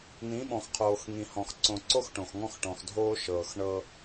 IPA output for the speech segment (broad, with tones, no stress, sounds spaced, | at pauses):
n̪ ĩ˨˦ ɓ ɔ̃˨ x qʰ oː˨ x ŋ ĩ˨ h ɔ̃˨ x ǀ õ˨ ǀ o˦ x ʈ õ˨ x ŋ ɔ̃˦ x ʈ ɔ̃˨ x dʱ oː˦ ʃ ɤː˨ x ɳ ɤ˦